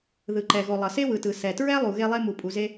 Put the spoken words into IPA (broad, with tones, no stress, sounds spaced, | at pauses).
ð ɯ˩ ǃ ɛ˩ ɣ o˩ lˠ ʌ˩ s e˥ w ɯ˩ t ɯ˩ s ɛ˩ t ɹ ɛ˥ lˠ u˩ ɣ e˥ lˠ e˥ m u˩ pʼ u˩ z e˥